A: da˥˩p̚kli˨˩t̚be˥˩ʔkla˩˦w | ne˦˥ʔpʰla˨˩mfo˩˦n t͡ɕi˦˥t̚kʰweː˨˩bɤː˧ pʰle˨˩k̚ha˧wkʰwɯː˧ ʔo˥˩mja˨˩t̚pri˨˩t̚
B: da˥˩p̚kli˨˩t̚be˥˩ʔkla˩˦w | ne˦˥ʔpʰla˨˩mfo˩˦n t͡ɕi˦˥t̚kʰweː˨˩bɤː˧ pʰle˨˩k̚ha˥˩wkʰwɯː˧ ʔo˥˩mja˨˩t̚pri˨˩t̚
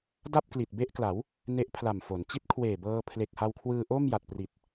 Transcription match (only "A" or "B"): A